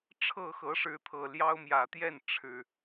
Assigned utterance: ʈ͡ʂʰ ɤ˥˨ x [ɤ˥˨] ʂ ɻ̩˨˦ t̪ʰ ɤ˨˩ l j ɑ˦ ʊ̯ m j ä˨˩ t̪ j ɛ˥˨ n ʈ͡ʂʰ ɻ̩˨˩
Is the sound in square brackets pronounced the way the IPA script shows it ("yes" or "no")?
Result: no